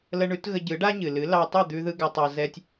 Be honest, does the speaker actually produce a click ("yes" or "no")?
no